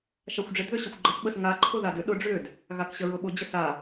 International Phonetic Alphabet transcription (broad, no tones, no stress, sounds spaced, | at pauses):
ʃ a xʷ ɖ͡ʐ ɪ d ð ʏ ɕ ʏ xʷ ɡ͡ǃ ə s ɓ ə s ŋ a ǃʰ ʊ ð a d ʏ ɗ ʊ ɖ͡ʐ ʏ d | ɣ a k ɕ ə ɹ ʊ ɓ ʊ d͡ʑ ə s a